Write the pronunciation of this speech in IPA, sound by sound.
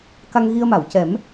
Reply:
k a˧ ŋ ɣ i˧ ə̯ m a˨˩˨ w c ɛ˨˩˦ m

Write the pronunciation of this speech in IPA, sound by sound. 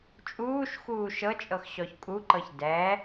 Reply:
t͡ʃʼ uː ʃ x uː ʃ ɤ t͡ʃʼ ɤ x ɕ ɔ ç kʼ u ǃ ɤ ç d ɛ

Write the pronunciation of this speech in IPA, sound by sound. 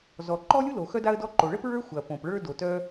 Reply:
z ɔ˩ ǃ ɔ˥ lʲ u˥ l o˩ x œ˥ d a˥ ə̯ d ɔ˥ ǃ o˩ ɭ ə˥ p ɹ ə˞˥ xʷ ɐ˩ p õ˩ p ɭ ə˞˥ d o˩ t œ˥

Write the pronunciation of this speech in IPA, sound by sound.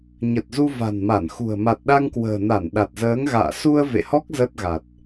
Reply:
ɲ ə˨˩ t̚ z u˧ v a̤˨˩ n m a˧˩ n x ṳ˨˩ ə̯ m a˨˩ t̚ ɗ a˧ ŋ k w ə̤ː˨˩ n a˧˩ n ɗ a˨˩ t̚ z əː˨˦ ŋ ɣ a̰ː˧˨ s u˧ ə̯ v ḛ˧˨ h ɔ˦˥ k̚ z ə˦˥ t̚ ɣ a˨˩ t̚

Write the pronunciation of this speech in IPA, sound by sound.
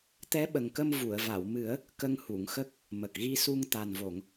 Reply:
t̪ ɛ˧˥ ɓ ə˨˩ ŋ k ə˧ m v u˨˩˨ ə̯ v a˨˩˨ w m ɨ˨˩˦ ə̯ | k ə˧ ŋ h u˨˩˨ ŋ x ə˦˥ k̚ | m ə˨˩ k̚ ɣ i˧ s u˧ ŋ t̪ a˨˩ n v o˨˩˨ ŋ

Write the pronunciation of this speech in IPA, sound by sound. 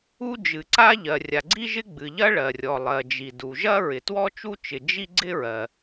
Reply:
u˥ d͡ʒ ɨ˩ ǀ a˥ ʎ ɜ˩ rʲ a˩ ɡ͡ǀ i˥ ʒ ɪ˥ ɡ͡b ɨ˩ ʎ ɐ˥ ɭ ɜ˩ rʲ ɔ˩ lˠ ɜ˩ d͡ʒ i˩ d u˩ ʒ ɐ˥ ɹ ɪ˩ t w ɔ˥ t͡ʃ u˥ t͡ʃ ɪ˩ d͡ʒ i˥ ɡ͡ǀ ɪ˥ ɹ ɜ˩

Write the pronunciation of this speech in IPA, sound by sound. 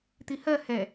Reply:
t̪ i h ɜ h ɛ

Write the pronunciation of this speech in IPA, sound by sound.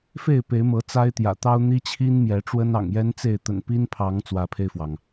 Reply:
f e˥˨ ɪ̯ p e˨˦ ɪ̯ m ɤ˨˦ t͡s a˦ ɪ̯ t̪ j ä̰˨˩ t̪ ɑ˦ ʊ̯ n̪ i˦ t͡ɕʰ i˦ n m j ɛ˨˦ ʈ͡ʂ w ə˦ n ɑ̰˨˩ ŋ j ɛ˦ n t͡s e˥˨ ɪ̯ t̪ ə̰˨˩ n p i˦ n pʰ ɑ˨˦ ŋ t͡s w ä˨˦ pʰ e˧ ɪ̯ f w ɑ˩ ŋ

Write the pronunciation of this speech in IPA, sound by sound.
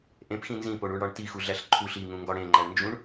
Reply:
ʔ ẽ p x ĩ n z ĩ p o ɳ u ɳ ɽ ɒ ɳ t i x u ɮ æ ɬ ǃʰ u ɬ i ŋ ũ ŋ ɡ ɒ ɽ ẽ ŋ͡ǃ æ ɳ n d͡ʒ ũ ɳ

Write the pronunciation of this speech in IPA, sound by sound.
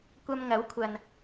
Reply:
kʷ ɐ˧ m ŋ ɐ˨˥ w kʷʰ ɐ˨ n

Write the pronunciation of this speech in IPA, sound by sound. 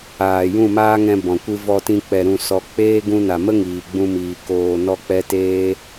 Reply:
aː˨ j ũ˦˨ m aː˦ ŋ ɛ̃˧ b ɔ̃˨ kʷ ɨ˦ v ɔ˧ t ĩ˧ k͡p ɛ˨ ɾ ũ˨ s ɔ˨ k͡p eː˦ ɡ ũ˧ n a˨ m ə˦ ŋ iː˨ ɡ͡b ũ˧ m iː˨ k oː˧ n ɔ˦ k͡p ɛ˦ t eː˦

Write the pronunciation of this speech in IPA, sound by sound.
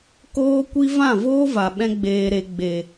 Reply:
k oː˦ kʷ i˦ v ã˦˨ v oː˦ v a˨ ɓ ɛ̃˦ ɡ͡b eː˧ ɾ e˧ ɡ͡b e˨

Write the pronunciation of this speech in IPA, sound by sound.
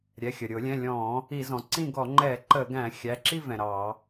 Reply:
ɾʲ ɛ˩˧˩ xʲ ə˩ ɾʲ ʊ˧˩˧ lʲ ɛ̃˩˧˩ lʲ ɔ̃˧˩˧ | i˧˩˧ z ɔ̃˩ ǀ ĩ˥˨ ɡ ɔ˧˩˧ ŋ͡ǃ ɛ˧˩˧ ǃ ə˧˩˧ ɡ æ̃˧˩˧ xʲ æ˩˧˩ ǁ i˥˨ v ɛ̃˩ ɾ ɑ˧˩˧

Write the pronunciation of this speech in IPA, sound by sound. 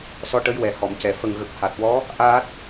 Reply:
s ɔ˧˥ ʈ ə˧˥ j w ɛ˨˩ h ɔ˨˩˨ m c ɛ˨˩˨ f ə˨˩ ŋ ɣ ə˨˩ k̚ h a˨˩ t̚ w ɔ˧˥ | ʔ aː˦˥ t̚

